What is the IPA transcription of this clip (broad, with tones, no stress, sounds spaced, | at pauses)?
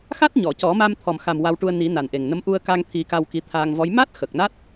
x a˦˥ t̚ ɲ ɔ˨˩˨ c ɔ˨˩˦ m a˧ m t̪ʰ ɔ˨˩ m x a˨˩ m w a˧ w ʈ u˧ ə̯ n i˨˩˦ n a˨˩ n ʔ e˨˩ ŋ n ə˧˥ m ʔ u˧ ə̯ k a˧ ŋ t̪ʰ i˨˩˦ k a˧ w k i˧ t̪ʰ aː˧ ŋ v ɔ˧˥ j m a˦˥ t̚ x ə˨˩ k̚ n a˦˥ t̚